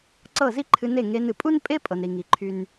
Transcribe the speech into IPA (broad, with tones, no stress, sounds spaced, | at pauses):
ǀ ɤ˦˨ z i˦ ǃʰ ɨ˧ n e˦˨ ŋ e˧ n ɨ˨ pʼ u˦ n pʼ e˦ pʼ ɤ˧ n ɾ i˧ ŋ i˧ ǃʰ y˦ n